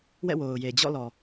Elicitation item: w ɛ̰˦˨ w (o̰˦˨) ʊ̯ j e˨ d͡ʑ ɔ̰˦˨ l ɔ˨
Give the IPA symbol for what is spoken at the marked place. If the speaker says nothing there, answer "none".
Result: o˨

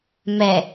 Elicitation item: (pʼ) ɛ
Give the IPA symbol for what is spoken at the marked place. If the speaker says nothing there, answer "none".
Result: m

